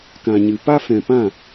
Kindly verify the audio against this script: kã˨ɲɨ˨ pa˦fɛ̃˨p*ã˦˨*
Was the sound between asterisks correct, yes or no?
yes